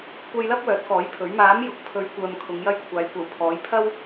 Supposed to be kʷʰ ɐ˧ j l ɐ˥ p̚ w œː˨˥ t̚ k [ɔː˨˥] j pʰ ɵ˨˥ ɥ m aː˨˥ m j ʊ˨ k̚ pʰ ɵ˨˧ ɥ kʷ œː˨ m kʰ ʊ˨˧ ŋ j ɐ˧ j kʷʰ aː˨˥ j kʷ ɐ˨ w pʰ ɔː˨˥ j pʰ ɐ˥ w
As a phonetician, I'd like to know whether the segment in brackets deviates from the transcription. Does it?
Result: no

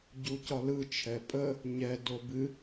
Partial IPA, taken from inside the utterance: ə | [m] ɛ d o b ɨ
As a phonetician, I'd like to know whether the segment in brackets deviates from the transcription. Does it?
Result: yes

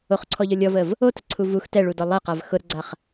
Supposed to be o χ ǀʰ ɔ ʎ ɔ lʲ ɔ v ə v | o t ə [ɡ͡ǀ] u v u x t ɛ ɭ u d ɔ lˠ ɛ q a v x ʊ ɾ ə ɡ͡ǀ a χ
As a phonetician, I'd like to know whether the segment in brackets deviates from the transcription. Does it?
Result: yes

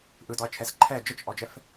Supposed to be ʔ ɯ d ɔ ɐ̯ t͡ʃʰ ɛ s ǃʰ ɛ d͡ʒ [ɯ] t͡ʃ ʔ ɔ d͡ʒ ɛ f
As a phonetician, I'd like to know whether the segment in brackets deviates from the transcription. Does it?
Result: yes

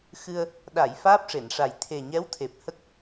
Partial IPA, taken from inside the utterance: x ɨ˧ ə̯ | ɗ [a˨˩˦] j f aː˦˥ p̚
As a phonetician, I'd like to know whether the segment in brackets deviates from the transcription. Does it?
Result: yes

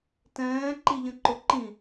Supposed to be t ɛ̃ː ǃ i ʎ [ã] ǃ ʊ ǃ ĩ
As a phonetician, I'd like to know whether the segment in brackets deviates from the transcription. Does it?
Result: yes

